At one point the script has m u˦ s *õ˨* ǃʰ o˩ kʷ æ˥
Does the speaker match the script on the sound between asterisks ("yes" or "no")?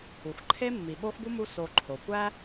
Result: no